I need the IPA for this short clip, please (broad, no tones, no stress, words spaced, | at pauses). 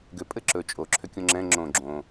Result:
ɡʏ pʼɘǁɵ t͡ʃʼo ǁʰʏkʲõŋ͡ǁɛ̃ ŋ͡ǁõ ɡ͡ǁõ